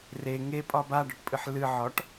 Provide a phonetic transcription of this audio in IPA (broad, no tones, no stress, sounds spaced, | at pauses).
r e ŋ e pʼ ɒ b a ɖ ɒ ʈ pʼ ɨ ħ l ɨ ʕ ɒ ʈ